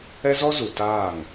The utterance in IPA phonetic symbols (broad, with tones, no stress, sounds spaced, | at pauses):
ɛ˦ z ɔ˦ z u˨ t aː˦˨ ŋ